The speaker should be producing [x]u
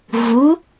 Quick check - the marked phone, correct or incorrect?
incorrect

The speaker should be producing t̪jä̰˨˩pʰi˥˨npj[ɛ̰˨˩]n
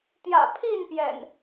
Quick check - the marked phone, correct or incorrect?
correct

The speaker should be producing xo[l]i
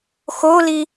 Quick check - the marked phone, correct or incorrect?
correct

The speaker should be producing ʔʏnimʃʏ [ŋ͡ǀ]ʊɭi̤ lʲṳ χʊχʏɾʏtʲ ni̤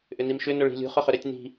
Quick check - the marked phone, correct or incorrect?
incorrect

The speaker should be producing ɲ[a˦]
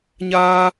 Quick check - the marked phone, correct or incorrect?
incorrect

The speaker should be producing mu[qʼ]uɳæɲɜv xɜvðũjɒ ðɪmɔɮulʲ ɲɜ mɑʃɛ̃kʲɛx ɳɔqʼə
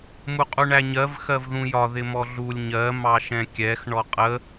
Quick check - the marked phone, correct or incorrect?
correct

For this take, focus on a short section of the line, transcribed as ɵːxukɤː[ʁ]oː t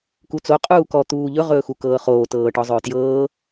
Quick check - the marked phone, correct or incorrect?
incorrect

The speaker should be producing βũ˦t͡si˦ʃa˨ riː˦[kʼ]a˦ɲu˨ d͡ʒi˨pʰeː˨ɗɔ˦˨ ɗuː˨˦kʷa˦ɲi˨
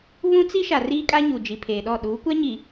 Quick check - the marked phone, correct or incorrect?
correct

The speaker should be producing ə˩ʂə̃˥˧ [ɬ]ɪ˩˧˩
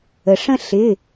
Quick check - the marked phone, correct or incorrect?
correct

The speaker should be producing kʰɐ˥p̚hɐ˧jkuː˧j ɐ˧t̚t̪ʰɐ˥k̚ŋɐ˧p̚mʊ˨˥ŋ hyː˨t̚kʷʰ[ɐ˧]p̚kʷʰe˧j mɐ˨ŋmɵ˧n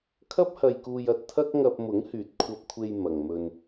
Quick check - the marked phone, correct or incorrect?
correct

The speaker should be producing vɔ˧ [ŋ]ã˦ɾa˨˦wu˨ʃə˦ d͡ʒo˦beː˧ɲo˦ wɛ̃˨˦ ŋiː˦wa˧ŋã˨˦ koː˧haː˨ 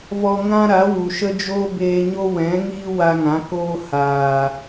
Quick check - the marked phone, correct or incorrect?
correct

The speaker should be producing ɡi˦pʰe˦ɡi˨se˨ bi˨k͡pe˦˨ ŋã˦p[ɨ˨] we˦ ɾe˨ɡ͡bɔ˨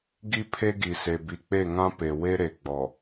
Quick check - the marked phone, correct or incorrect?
incorrect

